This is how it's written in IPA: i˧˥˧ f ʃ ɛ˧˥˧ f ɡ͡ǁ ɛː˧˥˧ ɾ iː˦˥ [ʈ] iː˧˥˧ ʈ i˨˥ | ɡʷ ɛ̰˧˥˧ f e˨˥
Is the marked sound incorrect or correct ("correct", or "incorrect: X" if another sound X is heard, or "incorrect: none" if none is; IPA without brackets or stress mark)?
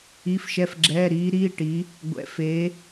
incorrect: ɾ